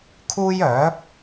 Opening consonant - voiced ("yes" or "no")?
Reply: no